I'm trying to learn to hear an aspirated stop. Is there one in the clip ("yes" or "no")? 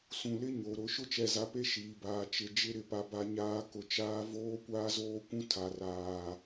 yes